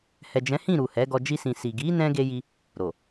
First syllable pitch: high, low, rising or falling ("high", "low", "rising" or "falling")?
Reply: low